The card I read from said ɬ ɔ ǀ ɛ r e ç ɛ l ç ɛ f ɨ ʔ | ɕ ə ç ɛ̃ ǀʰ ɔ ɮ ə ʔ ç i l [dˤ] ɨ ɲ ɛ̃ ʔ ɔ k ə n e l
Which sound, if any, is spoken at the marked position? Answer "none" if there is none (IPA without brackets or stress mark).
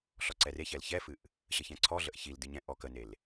d